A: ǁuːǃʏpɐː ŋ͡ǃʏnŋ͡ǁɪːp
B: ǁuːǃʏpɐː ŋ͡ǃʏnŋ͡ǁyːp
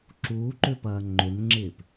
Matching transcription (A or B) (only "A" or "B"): A